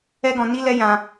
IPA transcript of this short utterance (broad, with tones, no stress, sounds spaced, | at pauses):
ɛ˦ ɡ ɔ̃˧ n i˦ l ɛ˦ j ã˧